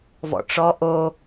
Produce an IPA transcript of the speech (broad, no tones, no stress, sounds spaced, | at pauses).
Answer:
v ɔ̰ ʈ͡ʂ ɔ ʔ o